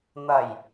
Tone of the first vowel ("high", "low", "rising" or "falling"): low